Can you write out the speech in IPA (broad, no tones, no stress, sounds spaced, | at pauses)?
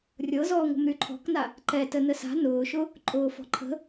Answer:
rʲ ɤ z ɔː ŋʷ ə̤ m ɾ y ǃʰ ɔ̤ k n a | ǃ ɛ t ə n ə s a̤ n ʊː ʃ ʊ | ǃʼ ʊː f ɔ̤ ǃʰ ə̤